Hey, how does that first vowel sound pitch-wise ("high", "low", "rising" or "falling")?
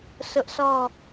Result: high